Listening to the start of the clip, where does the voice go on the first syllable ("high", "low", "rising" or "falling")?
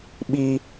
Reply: high